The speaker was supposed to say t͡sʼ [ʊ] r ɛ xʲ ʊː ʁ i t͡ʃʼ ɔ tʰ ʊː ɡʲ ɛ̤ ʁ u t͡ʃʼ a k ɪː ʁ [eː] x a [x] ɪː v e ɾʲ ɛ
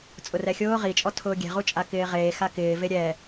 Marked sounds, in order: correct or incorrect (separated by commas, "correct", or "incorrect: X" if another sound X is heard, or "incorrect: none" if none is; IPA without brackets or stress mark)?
correct, correct, incorrect: k